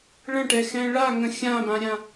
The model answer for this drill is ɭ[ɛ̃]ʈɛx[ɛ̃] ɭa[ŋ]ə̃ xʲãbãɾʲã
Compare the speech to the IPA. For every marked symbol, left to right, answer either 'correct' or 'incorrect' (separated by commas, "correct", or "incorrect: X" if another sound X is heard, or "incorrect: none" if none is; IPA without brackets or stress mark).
incorrect: ə̃, correct, correct